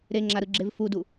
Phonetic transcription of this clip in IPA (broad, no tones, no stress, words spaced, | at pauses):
ɾeŋ͡ǁaɾɯɡ͡ǁev fudu